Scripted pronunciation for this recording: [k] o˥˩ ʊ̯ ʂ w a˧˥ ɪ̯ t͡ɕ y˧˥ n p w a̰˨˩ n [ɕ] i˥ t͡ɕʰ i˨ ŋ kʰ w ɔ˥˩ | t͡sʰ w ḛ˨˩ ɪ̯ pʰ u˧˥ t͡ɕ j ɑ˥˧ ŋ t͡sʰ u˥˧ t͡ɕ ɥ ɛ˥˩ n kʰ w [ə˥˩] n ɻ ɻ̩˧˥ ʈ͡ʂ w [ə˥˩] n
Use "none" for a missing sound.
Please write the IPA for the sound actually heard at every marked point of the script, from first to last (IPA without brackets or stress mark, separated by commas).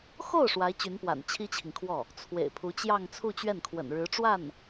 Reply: x, t͡ɕʰ, ə̰˨˩, a˥˩